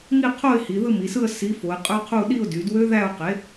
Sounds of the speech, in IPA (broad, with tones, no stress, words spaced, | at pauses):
ŋi˥˧qʰo˥˧ɪ̯ hi˩˧ðɯ˥˧mi˩˧sɯ˥˧ə̯ si˨˥fo˩˧ɪ̯qʼø˦˥qʰu˥˧ ɗi˥˧ʊ̯ dy˩˧dwø˦˥ðæ˥˧ʊ̯qe˨˥